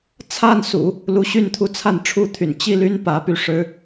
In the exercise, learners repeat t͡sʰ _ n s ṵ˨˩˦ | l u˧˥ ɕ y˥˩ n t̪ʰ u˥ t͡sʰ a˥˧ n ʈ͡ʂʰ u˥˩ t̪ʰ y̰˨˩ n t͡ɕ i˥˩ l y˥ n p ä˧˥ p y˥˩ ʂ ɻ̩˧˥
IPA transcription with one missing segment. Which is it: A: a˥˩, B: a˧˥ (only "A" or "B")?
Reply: A